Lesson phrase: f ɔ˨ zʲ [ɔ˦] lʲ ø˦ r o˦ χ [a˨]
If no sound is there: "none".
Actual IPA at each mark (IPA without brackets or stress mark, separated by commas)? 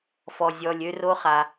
ɔ˨, a˨